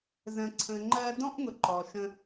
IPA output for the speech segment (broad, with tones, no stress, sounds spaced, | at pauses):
z ə̃˩ ǀʰ ə̃˩ ŋ͡ǃ ɜː˧ d ɔ̃˥ ʔ ŋ ʊ˩ ǃ ɔ˩ ʃ ə̃˧